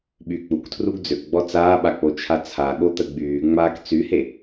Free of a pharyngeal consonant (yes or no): yes